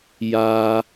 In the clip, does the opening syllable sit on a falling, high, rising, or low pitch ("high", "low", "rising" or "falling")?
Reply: high